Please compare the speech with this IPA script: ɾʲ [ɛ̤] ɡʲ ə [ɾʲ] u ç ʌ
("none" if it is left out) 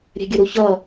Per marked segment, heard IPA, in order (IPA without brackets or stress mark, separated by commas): ɛ̤, ɾ